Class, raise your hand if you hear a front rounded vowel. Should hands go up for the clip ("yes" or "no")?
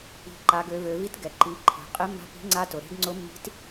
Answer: yes